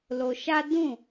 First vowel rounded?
yes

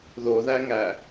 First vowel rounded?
yes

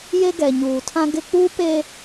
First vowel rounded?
no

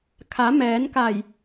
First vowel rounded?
no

